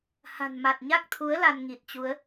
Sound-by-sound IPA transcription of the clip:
h a̤˨˩ n m a˨˩ t̚ ɲ a˦˥ k̚ t̪ʰ u˨˦ ə̯ l a˧ n ŋ i˨˩ t̚ t͡ɕ u˨˦ ə̯

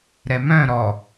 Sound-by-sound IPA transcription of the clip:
ɾ ɛ m œ̃ ɾ ɔ

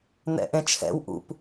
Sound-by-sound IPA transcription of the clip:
n̪ ɛ̰ ʔ ẽ t͡ʃʰ ɛ̰ w ʔ ṵ p

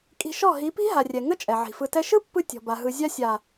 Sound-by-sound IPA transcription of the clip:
kʼ i̤˧ ʃ ɔ˦˨ ɦ i˨˦ p i̤˦ ɦ a˨ rʲ ɛ˨ ŋ ə˦ t͡ʃʼ ɛ˨ ʕ i̤˨ f ɯ˧ t ɛ˧ ʃ ɯ˦ pː ɯ˧ tʲ ɔ̤˨ b a˨ ɦ ɯ˨ zʲ a˧ sʲ a˨

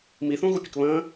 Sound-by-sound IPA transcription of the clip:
m i θ ũ ɣ u pʲ ə k β ə̃

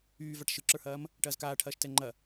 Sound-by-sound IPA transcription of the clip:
yː v a ʈ ʃ ɯ ǁ ə˞ h ɐː m | ʈ ɐː z k aː ʈʰ ɐː ʃ t ɛ ŋ͡ǃ ɐ

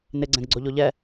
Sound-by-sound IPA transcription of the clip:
n ɪ ɡ͡ǀ ɛ̃ ɡ ɡ͡ǀ o ʎ o ʎ ɛ

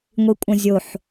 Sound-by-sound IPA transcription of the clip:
ŋʷ i kʷʼ ɐ̃ zʲ o ħ

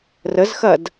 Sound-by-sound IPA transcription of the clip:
r ə z x ɐ d

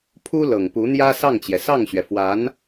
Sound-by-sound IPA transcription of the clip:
pʰ u˥ l ɤ˨˩ ŋ p u˧˥ n̪ j ä˥ s ɑ˥˩ ŋ t͡ɕ j ɛ˩ s ɑ˥˩ ŋ ɕ ɥ ɛ˩ f w a˧˥ n

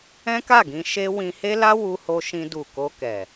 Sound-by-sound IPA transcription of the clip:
ɛ̃˦ k a˦˨ ɡ ĩ˧ ʃ e˦ w ĩ˧ h e˦ l a˦ w u˦ h o˦ ʃ ĩ˦ d u˦˨ k o˧ k ɛ˨

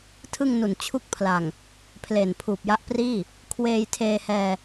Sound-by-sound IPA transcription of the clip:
tʰ ɯ˥˩ ŋ n u˨˩ n t͡ɕʰ u˥˩ k̚ pʰ l a˨˩ ŋ | pʰ l e˨˩ n pʰ uː˨˩ p̚ j a˦˥ ʔ p r iː˥˩ | kʰ w eː˧ j tʰ eː˧ h ɛː˧

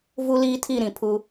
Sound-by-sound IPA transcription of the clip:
v u˦ l iː˦ tʰ i˦˨ ɾ ĩ˨ pʰ u˦

